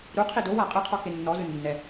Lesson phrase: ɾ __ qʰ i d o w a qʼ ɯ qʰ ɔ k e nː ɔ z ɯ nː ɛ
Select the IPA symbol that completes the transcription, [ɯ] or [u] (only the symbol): u